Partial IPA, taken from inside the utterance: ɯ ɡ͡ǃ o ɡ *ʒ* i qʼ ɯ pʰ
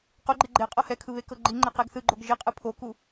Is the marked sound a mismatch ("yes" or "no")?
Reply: no